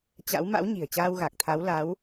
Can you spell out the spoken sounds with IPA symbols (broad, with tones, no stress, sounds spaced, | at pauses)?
t͡ɕ a̰˧˥ w m a̰˧˥ w ɲ i̤˨˩ ə̯ t͡ɕ aː˧ w ɣ a˨˩ k̚ t̪ʰ a˨˦ w l a˨˦ w